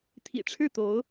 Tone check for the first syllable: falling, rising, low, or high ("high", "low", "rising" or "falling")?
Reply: low